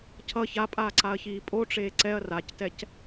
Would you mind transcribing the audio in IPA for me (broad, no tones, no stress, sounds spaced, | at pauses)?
cʰ ʌ ç a pʼ aː ǀ a ɐ̯ ç iː pʼ o ʈ͡ʂ eː ǀ ɛ ɐ̯ r a c t ɛ c